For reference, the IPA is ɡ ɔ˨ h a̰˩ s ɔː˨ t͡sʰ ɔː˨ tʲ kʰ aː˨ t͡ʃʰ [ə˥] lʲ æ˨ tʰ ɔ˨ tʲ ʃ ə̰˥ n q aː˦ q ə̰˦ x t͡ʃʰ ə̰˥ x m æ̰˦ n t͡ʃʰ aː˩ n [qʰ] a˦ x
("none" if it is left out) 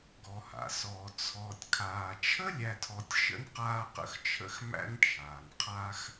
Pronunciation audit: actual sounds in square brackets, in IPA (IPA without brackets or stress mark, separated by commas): ə˥, qʰ